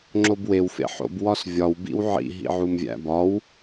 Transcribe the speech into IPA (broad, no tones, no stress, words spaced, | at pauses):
ŋ͡ǁobwew fḛħo̰b wɒsvʲɒw bḭwʕḭ ɦḭʕumvʲæ̰bɒw